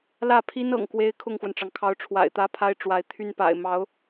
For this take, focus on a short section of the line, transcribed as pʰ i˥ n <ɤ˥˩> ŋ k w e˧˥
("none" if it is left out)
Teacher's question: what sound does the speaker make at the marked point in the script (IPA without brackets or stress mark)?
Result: ɤ̰˨˩